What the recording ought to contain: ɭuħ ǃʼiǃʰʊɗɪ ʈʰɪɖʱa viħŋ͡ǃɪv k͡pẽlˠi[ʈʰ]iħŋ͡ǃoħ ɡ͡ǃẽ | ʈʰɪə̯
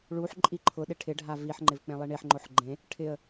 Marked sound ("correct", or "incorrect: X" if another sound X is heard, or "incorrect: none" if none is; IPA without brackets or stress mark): incorrect: ɳ